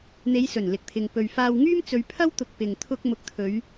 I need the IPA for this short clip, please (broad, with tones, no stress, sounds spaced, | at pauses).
n̪ e˨˧ j s ɵ˨˩ n l ɪ˨ k̚ t̪ʰ ɪ˨ ŋ p ɵ˨ ɥ f aː˧ w ŋ yː˥ m t͡s ɵ˨˧ ɥ pʰ ɐ˥ w t̪ ʊ˨ k̚ p ɪ˨ ŋ t̪ʰ ʊ˧ k̚ m ʊ˨˥ k̚ t̪ʰ ɵ˨˧ ɥ